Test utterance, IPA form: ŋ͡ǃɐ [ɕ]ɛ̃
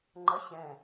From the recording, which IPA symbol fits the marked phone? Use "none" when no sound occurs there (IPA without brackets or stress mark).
ɕ